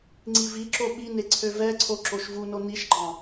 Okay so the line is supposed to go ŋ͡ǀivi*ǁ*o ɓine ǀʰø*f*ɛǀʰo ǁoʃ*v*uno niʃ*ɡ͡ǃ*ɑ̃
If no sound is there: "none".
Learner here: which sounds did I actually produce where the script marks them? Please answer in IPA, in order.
ǁ, v, v, ɡ͡ǃ

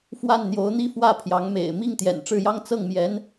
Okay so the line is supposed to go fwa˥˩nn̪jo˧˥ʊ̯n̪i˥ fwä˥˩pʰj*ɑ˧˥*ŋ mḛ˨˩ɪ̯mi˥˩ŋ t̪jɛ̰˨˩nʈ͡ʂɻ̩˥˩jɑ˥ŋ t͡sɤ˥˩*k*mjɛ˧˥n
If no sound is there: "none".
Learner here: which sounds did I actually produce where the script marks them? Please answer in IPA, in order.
ɑ˧˥, ŋ

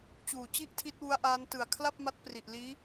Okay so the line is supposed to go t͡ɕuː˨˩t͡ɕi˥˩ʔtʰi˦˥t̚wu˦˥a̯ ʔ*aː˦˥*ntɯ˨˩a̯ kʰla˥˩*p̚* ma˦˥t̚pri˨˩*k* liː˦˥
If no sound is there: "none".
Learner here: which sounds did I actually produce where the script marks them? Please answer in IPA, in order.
aː˦˥, p̚, ʔ

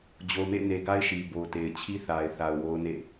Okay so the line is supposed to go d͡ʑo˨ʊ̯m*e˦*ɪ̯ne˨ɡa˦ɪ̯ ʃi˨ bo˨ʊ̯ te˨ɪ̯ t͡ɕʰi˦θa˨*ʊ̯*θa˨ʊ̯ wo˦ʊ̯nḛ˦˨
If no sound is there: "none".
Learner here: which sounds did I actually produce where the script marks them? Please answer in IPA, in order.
ḛ˦˨, ɪ̯

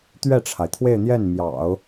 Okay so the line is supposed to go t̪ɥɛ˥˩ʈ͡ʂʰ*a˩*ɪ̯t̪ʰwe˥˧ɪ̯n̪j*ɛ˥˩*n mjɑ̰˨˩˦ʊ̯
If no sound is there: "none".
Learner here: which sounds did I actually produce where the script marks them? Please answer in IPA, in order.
a˩, ɛ˥˩

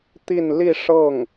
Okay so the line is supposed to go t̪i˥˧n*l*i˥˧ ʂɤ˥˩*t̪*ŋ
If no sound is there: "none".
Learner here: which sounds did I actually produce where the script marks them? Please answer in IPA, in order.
l, none

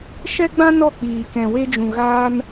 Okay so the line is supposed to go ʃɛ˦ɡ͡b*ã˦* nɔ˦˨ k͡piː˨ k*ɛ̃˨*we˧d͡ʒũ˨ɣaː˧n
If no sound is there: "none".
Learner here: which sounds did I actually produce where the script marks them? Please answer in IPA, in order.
ã˦, ɛ̃˨

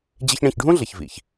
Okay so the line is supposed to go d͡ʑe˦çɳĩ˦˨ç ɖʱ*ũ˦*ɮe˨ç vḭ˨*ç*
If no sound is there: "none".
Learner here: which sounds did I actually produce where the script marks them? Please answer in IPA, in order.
ũ˦, ç

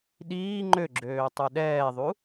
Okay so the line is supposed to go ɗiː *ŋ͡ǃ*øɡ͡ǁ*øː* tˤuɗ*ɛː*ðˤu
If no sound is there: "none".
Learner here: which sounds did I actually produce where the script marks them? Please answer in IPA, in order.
ŋ͡ǃ, øː, ɛː

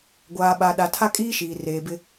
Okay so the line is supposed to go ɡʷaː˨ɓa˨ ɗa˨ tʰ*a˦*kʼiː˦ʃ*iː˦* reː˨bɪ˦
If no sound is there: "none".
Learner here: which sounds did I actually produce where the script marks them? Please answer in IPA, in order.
a˦, iː˨

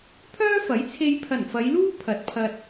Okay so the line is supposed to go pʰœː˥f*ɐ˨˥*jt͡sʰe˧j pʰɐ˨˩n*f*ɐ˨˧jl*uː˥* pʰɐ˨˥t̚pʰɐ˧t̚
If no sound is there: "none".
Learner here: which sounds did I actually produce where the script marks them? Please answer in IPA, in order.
ɐ˨˥, f, uː˥

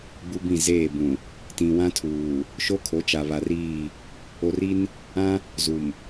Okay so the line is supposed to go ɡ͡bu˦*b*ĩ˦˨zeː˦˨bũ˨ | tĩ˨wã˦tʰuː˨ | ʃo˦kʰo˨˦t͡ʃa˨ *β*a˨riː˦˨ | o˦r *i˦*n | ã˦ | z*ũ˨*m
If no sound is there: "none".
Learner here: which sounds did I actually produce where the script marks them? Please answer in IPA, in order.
b, β, i˦, u˨

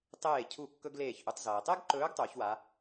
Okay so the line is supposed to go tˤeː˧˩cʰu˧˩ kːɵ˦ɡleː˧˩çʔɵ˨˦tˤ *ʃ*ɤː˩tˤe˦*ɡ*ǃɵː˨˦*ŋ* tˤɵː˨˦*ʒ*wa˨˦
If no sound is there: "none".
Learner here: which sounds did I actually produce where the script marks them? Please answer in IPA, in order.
z, ɡ, ɡ, ç

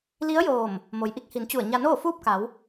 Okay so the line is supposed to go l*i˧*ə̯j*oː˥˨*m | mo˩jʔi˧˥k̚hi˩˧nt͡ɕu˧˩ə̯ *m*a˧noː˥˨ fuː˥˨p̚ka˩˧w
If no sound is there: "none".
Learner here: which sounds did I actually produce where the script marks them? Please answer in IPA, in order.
i˧˥, oː˧˩, ɲ

